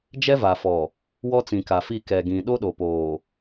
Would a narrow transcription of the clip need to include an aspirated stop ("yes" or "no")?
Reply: no